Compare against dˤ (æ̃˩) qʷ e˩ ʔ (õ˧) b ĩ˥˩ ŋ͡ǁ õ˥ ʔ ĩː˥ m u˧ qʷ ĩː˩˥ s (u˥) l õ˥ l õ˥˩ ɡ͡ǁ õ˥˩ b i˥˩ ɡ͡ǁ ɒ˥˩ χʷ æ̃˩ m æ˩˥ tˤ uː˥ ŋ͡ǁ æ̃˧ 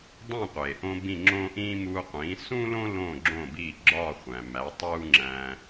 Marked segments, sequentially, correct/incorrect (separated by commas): incorrect, correct, incorrect